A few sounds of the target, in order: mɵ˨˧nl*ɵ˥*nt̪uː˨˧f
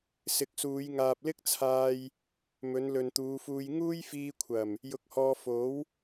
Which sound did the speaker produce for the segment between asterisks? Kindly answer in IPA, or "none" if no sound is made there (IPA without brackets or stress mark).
ɵ˨